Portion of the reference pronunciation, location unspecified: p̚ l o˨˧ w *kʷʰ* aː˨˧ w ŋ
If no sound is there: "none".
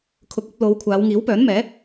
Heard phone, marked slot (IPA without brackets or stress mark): kʷʰ